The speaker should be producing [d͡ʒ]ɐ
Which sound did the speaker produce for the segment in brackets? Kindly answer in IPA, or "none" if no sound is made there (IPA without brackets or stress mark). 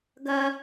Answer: ɡ